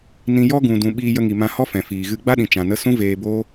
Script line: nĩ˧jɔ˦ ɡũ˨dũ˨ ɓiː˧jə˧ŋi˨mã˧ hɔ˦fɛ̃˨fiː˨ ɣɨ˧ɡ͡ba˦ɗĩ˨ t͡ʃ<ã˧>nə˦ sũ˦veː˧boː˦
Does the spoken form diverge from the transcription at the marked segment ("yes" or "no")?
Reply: no